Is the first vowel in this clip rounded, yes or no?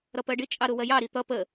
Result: no